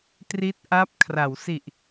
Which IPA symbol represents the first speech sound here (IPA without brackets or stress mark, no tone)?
t